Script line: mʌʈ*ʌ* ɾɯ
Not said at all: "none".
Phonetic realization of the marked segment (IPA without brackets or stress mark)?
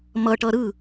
ʌ